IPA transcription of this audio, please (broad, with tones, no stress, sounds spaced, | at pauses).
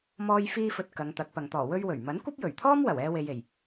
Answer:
m ɔː˧ j f iː˧ f ɵ˨ t̚ k ɐ˨˧ ŋ t̪ ɐ˨˥ k̚ p ɐ˨ ŋ t̪ ɔː˨˩ w ɵ˥ ɥ w ɵ˨˩ ɥ m ɐ˨˥ n kʷ ɐ˥ p̚ j ɵ˨˩ ɥ t̪ʰ ɔː˥ m w ɐ˨˩ w ɛː˧ w e˨ j e˨˩ j